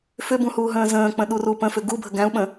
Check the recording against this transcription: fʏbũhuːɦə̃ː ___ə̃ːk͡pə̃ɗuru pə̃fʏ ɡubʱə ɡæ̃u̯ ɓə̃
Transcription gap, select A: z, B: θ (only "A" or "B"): A